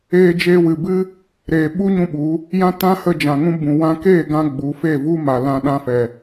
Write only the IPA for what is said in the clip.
eː˧d͡ʒeː˧wɨ˨bɨ˦ | ɾeː˨ɓu˦ ɲũ˦ɓu˨˦ | jã˦tã˦hə˧ d͡ʒã˨ŋũ˦ bũ˨ wã˧keː˦˨ɡã˧ ɡ͡bu˨˦fe˦˨vu˦ ma˨lã˧ ɗã˧fɛ˨

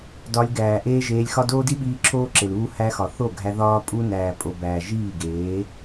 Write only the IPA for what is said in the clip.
dɒ˧lʲɡæː˨ ʔeː˦ʒeː˧lʲxɒ˦ doː˦di˦ɓiː˧ ǁʰoː˦ǁe˨l uː˦hæ˦xɒ˨ θo˦˨ɡʱæ˧ ðɒː˦pʼu˦ næː˨pʼo˨ bæː˨ ʒiː˦˨ɡeː˨˦

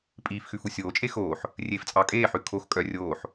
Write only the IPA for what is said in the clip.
pʼiːfxʉf usʲoːt͡ʃʼe xoːħ | rʲeːft͡sʼɑkʼeːħʉ kʰox kʼœ rʲoːħ

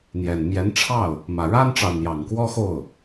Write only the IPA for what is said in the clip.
n̪jɛ˨˩n mjɛ˧˥nʈ͡ʂʰɑ˥˩ʊ̯ | mä˨˩ ɻa˥nʈ͡ʂɑ˨ʊ̯n̪jɑ˨˩ŋ kwɔ˥xo˥˩ʊ̯

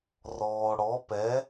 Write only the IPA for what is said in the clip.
rɔ˩ ɽɔ˩˥pɛ˩˥

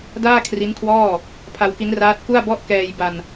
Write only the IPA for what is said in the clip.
daː˥˩kʰri˦˥nkʰwɔː˥˩ | pʰa˧wki˦˥nraː˦˥t̚ ku˥˩a̯bɔ˥˩ʔ kɛː˧jba˧n

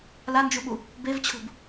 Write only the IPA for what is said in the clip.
land͡ʒuɓu | bevt͡ɕʰṳb

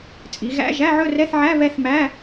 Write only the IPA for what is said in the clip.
t͡sʼi˩˧ɣæ̰˧˥˧ ʒæ˧˥˧ʕɵ˥˧rɛ˧˥˧θʕæ˧˥˧ βɛ˥˧θmæ˧˥˧

